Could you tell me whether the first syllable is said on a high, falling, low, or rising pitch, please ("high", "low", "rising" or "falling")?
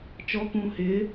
rising